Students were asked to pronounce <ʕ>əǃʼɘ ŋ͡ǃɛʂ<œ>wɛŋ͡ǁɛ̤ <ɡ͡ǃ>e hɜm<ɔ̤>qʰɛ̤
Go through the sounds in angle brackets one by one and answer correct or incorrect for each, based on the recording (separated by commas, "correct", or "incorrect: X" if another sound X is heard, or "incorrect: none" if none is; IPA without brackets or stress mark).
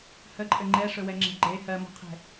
incorrect: h, incorrect: ɵ, correct, correct